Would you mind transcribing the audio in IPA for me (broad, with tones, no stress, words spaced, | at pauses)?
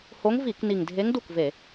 ho˧˥ŋvi˧˩˧kni˨˩ŋdʱe˧˥ŋ du˥˩kve˧˩˧